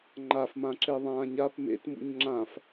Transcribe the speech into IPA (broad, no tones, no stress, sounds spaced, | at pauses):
ŋ͡ǃ a f m ã ǁ e ðˤ ãː ɲ a p m ḛ t m ṵ ɲ ŋ͡ǁ ã f